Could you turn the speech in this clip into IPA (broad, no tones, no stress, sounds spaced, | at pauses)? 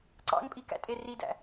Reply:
ǀ ɑ̰ ŋ pʼ i k æ̰ tʼ e r i d æ̰